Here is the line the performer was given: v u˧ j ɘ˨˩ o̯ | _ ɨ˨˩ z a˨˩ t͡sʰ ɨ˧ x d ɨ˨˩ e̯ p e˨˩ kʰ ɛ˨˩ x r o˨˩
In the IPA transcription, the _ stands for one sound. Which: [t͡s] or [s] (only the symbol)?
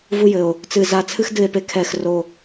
t͡s